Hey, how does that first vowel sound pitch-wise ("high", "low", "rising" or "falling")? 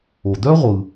low